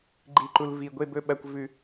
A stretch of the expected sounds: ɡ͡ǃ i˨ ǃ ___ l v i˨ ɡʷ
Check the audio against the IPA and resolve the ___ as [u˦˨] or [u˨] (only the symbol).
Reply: u˨